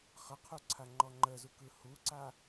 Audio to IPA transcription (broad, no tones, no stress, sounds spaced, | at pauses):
χ ə qʰ u ǀʰ a ŋ͡ǃ ɔ ŋ͡ǃ ə z u k ɯ h u ǀ a